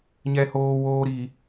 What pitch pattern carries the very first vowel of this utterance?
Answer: low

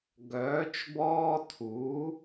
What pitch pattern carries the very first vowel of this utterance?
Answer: rising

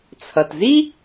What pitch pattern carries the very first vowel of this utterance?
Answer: low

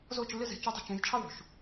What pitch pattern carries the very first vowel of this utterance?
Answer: falling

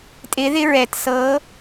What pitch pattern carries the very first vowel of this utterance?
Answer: rising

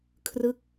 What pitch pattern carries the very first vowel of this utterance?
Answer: falling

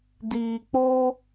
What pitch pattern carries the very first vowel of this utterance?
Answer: low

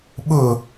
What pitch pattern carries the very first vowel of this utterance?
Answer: falling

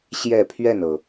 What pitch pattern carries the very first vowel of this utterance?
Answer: falling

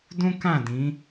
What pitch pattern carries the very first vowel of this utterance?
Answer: high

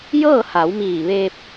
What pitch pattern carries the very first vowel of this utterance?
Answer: falling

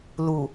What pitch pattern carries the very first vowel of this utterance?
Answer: low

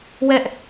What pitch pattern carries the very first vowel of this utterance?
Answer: high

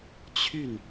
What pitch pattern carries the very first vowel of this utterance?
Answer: falling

